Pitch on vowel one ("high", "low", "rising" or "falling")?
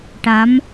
rising